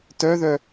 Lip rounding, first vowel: rounded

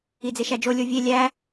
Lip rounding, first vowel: unrounded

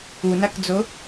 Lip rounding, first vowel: rounded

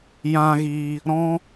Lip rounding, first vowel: unrounded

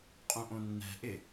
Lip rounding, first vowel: rounded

